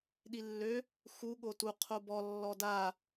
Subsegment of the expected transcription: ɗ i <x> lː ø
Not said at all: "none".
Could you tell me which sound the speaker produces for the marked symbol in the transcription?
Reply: none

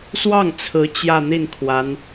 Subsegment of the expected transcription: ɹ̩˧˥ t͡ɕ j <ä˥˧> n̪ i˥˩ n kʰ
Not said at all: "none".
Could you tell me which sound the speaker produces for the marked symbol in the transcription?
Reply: ä˥˧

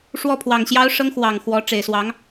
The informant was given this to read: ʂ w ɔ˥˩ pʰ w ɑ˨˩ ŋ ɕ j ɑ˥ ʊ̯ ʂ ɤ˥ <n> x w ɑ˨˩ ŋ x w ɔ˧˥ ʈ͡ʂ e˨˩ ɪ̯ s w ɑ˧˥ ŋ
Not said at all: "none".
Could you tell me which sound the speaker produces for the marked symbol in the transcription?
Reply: ŋ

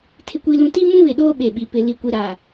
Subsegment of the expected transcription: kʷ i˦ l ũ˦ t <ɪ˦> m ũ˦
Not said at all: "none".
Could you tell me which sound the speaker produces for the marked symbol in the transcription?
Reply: i˦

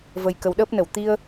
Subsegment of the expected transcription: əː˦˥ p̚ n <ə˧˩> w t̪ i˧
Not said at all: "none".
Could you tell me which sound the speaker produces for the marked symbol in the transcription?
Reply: ə˧˩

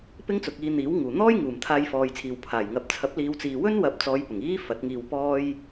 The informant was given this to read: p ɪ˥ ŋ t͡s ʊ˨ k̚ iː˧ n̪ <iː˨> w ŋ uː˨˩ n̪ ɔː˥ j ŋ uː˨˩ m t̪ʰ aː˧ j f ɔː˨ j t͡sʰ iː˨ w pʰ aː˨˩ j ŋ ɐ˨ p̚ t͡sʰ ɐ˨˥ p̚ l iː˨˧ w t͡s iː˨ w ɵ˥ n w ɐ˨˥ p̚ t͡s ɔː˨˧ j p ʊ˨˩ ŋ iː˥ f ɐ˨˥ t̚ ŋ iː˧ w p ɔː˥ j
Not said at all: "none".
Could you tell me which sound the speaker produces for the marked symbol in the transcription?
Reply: iː˨˥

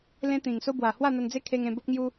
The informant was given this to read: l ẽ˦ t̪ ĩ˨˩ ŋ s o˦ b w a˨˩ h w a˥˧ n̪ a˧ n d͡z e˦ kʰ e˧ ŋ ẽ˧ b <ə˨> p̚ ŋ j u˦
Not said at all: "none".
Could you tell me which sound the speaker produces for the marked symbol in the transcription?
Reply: ə˦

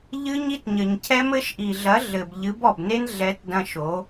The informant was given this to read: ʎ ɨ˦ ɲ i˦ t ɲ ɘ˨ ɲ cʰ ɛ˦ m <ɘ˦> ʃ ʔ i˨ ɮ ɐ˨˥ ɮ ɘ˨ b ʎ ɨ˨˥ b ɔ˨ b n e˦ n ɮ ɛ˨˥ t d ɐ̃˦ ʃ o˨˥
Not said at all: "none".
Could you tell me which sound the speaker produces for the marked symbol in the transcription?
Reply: ɘ˦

